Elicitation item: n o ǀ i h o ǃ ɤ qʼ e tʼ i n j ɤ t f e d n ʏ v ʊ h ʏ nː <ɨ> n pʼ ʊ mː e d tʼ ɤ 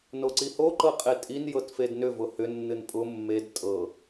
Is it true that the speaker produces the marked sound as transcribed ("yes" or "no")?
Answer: yes